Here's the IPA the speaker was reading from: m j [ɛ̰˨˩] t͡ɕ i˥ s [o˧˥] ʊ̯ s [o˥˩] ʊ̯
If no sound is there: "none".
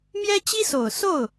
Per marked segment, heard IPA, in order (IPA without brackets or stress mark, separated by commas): ɛ˥, o˨˩, o˥˩